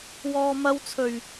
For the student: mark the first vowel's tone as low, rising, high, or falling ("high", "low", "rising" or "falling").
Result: low